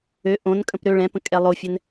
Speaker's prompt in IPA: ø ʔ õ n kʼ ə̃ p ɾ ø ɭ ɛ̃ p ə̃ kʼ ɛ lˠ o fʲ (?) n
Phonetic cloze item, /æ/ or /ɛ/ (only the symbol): ɛ